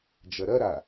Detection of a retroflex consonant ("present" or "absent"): absent